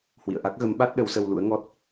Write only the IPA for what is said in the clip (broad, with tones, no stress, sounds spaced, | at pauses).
h w ḭ˧˨ ə̯ ʔ a˦˥ k̚ ɣ ə˨˦ m ɓ a˦˥ t̚ ɗ ə˨˦ w s ə˧ w l ṵ˧˥ ə̯ ŋ ɔ˦˥ t̚